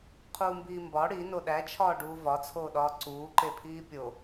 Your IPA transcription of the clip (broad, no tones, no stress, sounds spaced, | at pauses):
qʰ uː m b iː m b ɒ ɽ i n o ɗ æ t͡ʃʰ ɒː ɖ uː v ɒ t͡sʰ oː ɗ ɒː ǀ uː ǃ e pʰ iː pʲ o